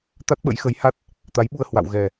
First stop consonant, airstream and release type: plain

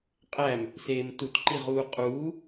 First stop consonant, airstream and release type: ejective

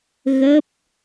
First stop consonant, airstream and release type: plain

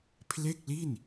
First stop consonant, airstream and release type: aspirated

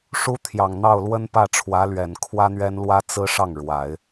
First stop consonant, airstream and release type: aspirated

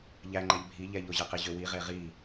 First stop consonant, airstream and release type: click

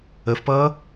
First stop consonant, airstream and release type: plain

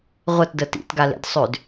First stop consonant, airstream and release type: plain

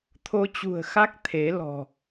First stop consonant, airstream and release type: aspirated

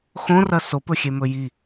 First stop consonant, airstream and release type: plain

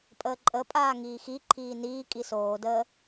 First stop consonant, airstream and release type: ejective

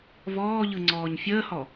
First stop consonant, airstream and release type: click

